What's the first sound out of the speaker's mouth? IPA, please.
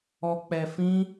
ɔ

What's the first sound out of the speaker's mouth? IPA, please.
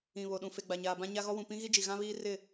ĩ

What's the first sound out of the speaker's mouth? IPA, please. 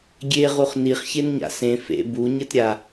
ɡʲ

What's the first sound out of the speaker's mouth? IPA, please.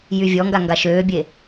j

